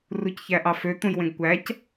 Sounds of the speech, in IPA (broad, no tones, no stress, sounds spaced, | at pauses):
r u c ç æ ʔ ɑ f ø t̪ ũ j w ẽ ɡ kʷ æ c